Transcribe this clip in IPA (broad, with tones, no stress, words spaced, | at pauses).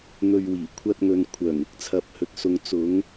n̪ɵ˨ɥwiː˨˩kʷʰɐ˧t̚ŋɵ˨n kʷʰœː˨˩ŋɪ˨˥k̚t͡sʰɐ˨p̚hɵ˨t̚ sʊ˨ŋt͡sʊ˨˧ŋ